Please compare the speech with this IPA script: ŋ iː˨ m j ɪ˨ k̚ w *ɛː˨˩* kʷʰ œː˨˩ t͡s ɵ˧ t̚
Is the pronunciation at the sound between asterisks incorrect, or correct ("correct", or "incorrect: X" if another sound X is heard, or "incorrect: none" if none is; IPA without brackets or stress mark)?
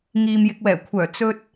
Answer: correct